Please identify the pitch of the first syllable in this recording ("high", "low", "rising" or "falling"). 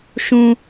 high